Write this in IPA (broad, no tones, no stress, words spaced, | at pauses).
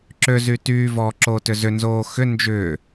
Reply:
ǁøzy tyːvɔː ǁoːtʏzʏnzoː xʏ nd͡ʒʏː